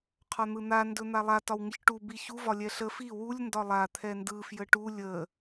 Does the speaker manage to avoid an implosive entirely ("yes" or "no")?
yes